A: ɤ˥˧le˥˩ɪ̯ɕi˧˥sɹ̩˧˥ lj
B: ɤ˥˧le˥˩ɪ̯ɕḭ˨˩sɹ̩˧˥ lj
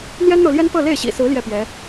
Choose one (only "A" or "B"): B